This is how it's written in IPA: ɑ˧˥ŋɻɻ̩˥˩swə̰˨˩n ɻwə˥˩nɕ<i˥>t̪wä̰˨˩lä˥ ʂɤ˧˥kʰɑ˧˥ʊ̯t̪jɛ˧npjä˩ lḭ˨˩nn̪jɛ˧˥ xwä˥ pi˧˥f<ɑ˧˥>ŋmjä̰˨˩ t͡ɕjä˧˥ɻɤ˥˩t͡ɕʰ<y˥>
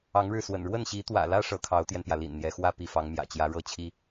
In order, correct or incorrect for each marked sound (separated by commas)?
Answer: incorrect, correct, incorrect